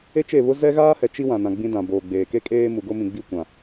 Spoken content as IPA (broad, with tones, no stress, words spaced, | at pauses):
e˦t͡ʃe˦˨βʊ˦ zɛ˦ɣaː˦hɛ˨ t͡ʃi˦ wã˨nã˨ɡ͡bĩ˦dã˨ boː˨ɡ͡beː˨ ke˦kʼeː˦ mu˨ɡo˦ mĩ˨ɡ͡bi˦˨ kʷã˨